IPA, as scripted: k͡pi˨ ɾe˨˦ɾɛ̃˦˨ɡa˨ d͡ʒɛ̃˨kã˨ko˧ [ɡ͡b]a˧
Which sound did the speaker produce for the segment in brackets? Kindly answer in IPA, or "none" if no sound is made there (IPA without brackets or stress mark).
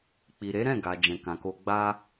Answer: ɡ͡b